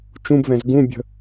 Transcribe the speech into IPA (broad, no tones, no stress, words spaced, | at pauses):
t͡ʃũbvɛ̃z ɡũbʲə̤